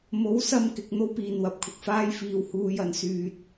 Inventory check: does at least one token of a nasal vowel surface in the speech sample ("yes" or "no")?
no